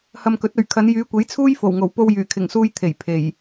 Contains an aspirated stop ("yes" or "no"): yes